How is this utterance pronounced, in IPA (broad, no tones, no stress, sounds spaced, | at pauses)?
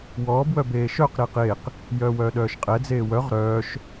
w ɔː b w œ b eː ʃ œ q ɾ e q eː q | j œː w œː ɗ œː ʃ qʼ ɛ d͡z eː w œ ʁ ɾ œː ʃ